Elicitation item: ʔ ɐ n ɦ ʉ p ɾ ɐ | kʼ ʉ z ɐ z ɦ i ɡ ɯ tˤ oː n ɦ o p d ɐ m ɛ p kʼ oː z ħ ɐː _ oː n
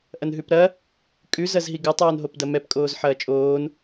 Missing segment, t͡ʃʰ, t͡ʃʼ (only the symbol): t͡ʃʼ